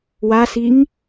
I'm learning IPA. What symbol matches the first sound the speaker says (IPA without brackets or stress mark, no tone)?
w